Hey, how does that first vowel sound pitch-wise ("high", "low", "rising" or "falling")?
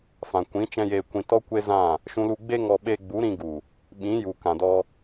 low